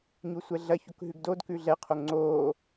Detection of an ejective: absent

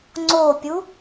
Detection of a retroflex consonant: absent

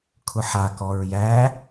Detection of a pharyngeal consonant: present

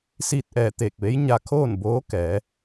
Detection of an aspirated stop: present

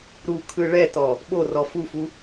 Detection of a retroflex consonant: present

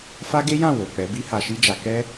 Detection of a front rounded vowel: absent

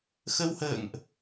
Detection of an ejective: absent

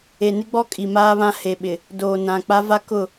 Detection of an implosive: present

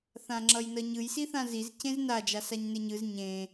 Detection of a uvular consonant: absent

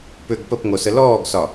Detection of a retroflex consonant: absent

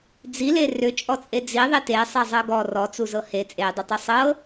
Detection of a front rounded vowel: present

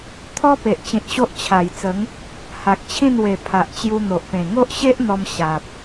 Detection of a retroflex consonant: absent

